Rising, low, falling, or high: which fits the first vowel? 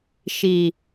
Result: low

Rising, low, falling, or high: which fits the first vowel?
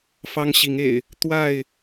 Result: high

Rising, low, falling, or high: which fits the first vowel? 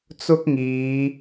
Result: high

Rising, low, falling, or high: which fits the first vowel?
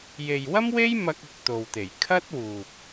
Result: low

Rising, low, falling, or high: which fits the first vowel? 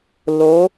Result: rising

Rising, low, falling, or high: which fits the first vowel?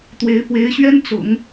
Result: rising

